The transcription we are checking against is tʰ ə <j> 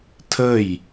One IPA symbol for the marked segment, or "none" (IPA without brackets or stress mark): j